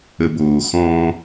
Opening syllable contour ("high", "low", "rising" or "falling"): low